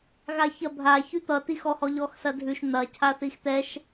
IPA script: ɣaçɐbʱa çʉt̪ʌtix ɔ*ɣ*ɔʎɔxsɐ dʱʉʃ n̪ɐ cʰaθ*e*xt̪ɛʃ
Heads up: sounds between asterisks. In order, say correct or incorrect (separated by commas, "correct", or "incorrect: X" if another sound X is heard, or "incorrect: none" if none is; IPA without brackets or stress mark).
incorrect: h, incorrect: i